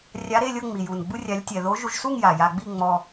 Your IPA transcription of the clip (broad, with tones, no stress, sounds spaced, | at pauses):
rʲ a˧˥ ɾ e˧˥˧ lʲ ɤ˥˧ ŋ͡m i˨˩ j u˨˩ n ɡ͡b u˧ rʲ a˧˥ lʲ tʲ ɛ˧ ð o˧˥ ʒ u˧ ʒ s u˥˧ ŋ j a˨˩ j a˧ ɡ͡b i˥˧ ŋ͡m ɔ˧